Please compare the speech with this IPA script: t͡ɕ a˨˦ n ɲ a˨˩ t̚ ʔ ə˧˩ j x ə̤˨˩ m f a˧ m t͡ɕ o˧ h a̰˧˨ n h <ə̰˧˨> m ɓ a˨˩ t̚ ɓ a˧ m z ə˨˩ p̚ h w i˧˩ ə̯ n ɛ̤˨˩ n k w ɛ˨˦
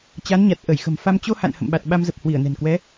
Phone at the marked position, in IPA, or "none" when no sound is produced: ə̰˧˨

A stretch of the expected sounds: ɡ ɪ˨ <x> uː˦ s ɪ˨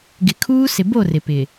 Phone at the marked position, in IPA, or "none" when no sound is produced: kʰ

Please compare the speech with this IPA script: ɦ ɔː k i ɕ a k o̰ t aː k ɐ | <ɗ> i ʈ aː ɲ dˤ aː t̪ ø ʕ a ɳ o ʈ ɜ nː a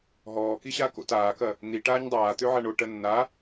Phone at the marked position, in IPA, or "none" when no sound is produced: n̪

